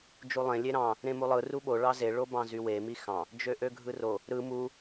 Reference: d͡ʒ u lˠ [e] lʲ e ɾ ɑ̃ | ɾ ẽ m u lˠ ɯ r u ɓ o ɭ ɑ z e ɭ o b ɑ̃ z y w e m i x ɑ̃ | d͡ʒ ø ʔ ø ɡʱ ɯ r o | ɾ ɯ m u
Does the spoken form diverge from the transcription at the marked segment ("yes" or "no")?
yes